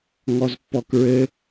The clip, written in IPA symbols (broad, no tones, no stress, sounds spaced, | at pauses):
ŋ ɔ z pː ɔ k ɹ ɘ